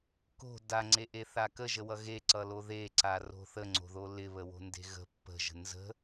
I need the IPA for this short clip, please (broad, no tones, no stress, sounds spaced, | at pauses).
k o̤ d a ŋ͡ǀ e ʔ e θ a k ə ʒ ə w ʌ ɣ e ǀ ʌ l o ð e ǀ a r o̤ θ ə ŋ͡ǀ o̤ ð o l ɪ β ə w o̤ n d e̤ ɣ ə̤ pː ə̤ ʒ ə̤ n z ə̤